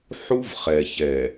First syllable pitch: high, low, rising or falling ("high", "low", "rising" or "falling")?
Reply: high